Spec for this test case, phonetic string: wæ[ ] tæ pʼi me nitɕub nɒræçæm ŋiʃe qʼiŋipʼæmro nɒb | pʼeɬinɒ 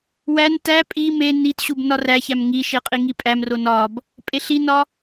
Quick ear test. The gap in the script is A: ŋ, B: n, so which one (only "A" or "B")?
B